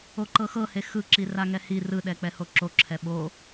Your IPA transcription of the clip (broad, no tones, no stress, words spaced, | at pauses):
oǃɤxɤhe xɯǁi raŋɛhi rɯɗɛk͡pɛho ǁoǁʰɛ ɓo